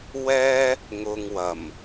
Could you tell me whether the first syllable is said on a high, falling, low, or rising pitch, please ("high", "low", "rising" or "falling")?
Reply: high